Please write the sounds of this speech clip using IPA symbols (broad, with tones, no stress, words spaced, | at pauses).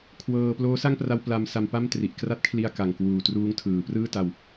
kʰwɤː˧ ploː˦˥sa˥˩ŋpra˧w pla˧m sa˧mpa˥˩mtri˨˩ʔ kra˥˩t̚kʰli˧a̯ ka˨˩ŋkwuː˨˩ truː˦˥ŋtʰɯː˩˦ prɯː˥˩ta˧w